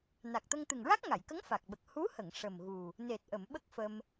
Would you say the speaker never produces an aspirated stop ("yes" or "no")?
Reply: yes